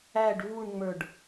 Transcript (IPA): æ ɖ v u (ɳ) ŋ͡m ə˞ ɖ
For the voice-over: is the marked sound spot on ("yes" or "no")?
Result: yes